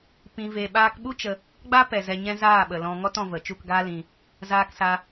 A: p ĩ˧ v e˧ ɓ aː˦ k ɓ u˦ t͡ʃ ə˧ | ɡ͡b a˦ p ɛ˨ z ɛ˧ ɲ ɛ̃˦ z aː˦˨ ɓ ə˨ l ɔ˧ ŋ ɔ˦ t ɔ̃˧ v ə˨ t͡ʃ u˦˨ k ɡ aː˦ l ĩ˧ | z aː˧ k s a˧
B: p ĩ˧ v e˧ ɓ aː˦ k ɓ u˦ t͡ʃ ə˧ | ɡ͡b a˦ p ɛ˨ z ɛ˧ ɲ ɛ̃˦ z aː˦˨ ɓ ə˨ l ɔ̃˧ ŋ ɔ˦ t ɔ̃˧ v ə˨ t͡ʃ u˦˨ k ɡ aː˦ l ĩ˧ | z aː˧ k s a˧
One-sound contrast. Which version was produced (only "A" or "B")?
B